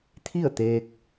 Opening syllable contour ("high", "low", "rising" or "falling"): falling